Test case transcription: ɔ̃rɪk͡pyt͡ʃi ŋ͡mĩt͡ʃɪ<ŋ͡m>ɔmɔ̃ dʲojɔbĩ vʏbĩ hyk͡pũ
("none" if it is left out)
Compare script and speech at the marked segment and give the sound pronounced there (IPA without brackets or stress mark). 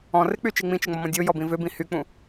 ŋ͡m